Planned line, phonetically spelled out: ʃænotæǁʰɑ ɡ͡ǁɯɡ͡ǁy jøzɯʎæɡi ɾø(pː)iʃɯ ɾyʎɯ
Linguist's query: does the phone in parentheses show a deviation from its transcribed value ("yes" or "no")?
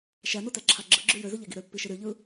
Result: no